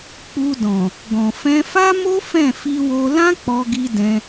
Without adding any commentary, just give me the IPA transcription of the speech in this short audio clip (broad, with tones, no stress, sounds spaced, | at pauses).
k͡p u˧ d ɔ̃˨ | ɡ ɔ̃˨ f ɛ̃˧ f a˦ m o˦ f ɛ̃˦˨ f i˧ w o˧ l ã˦ k͡p ɔ˧ ɡ i˧ d ɛ̃˧